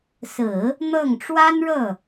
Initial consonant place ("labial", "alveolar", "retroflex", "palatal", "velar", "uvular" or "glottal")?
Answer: alveolar